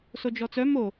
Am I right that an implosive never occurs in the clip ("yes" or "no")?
yes